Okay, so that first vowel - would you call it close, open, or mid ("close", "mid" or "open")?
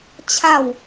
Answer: open